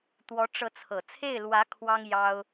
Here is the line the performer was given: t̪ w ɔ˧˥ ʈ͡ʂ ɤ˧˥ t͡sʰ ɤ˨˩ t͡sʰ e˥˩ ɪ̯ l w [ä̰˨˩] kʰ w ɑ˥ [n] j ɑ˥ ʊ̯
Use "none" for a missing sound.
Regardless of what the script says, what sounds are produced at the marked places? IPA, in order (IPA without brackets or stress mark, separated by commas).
ä˧˥, ŋ